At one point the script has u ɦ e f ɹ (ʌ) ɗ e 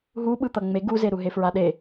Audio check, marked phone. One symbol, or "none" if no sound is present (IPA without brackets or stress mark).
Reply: a